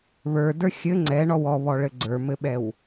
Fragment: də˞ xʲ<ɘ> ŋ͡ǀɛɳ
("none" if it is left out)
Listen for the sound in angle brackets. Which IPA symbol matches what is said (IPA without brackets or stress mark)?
ɘ